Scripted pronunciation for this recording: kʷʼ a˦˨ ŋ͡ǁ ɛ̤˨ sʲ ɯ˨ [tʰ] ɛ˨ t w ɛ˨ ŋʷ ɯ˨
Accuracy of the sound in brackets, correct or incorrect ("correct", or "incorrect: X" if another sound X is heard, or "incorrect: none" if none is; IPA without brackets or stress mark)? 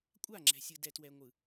incorrect: d